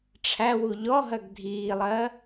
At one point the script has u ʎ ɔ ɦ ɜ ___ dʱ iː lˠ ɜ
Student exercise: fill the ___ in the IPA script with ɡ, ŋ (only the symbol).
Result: ɡ